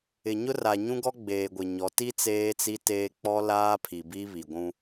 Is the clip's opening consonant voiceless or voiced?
voiced